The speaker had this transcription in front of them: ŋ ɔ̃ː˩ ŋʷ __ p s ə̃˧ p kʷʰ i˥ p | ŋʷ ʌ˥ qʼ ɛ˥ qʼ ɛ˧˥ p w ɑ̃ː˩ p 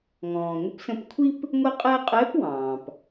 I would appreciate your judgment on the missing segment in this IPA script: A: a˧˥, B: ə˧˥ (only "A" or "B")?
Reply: B